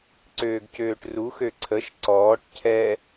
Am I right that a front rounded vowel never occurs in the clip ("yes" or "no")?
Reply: no